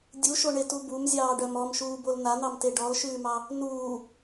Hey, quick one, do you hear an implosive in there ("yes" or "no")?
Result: no